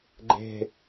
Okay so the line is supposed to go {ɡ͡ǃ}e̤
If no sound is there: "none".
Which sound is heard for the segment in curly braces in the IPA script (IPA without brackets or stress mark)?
ɡ͡ǃ